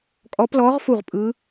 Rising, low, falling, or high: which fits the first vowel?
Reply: rising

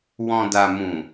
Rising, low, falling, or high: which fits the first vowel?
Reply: low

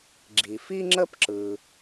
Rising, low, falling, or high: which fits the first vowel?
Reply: low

